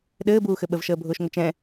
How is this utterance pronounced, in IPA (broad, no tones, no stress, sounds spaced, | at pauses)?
ɗ ɘː b uː x ɘ ɓ ə v ʃ əː bʱ ʊː ʃ ŋ ʊ t͡ʃ ɛ̃